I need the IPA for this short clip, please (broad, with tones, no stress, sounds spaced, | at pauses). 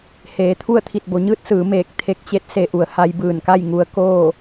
h eː˩˧ t̪ʰ u˥˨ ə̯ t̪ʰ i˧˩ t̚ b o˩˧ ɲ ɯː˧˥ t̚ s ɯː˩˧ m eː˧˩ k̚ t̪ʰ e˧˥ k̚ t͡ɕ e˧˥ t̚ s e˧ ʔ u˩˧ ə̯ h a˧ j b ɯː˧˩ n k a˥˨ j ŋ u˧ ə̯ k oː˥˨